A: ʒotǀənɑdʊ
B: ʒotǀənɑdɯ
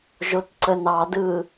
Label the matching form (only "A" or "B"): B